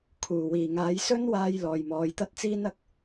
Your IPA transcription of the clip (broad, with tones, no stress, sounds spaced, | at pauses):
kʰ uː˨˩ w iː˨˩ ŋ aː˨˥ j s ɵ˥ n w aː˧ j l ɔː˨ j m ɔː˨˧ j t̪ ɐ˥ t̚ t͡s iː˥ n ɐ˨˥ k̚